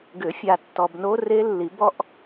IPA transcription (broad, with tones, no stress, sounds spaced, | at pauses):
ɡ ʏ˨˩˦ fʲ a˨ tː ɔ˨ b n o˦˥ r e˦˥ lː i˨˩˦ b ɔ˦˥ ʔ